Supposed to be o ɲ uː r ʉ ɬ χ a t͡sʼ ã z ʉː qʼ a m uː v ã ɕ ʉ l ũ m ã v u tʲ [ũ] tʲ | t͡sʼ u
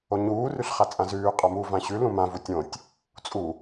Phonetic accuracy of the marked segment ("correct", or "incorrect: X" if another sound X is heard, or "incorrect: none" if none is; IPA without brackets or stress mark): incorrect: õ